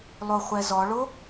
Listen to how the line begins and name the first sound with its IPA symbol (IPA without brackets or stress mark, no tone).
lˠ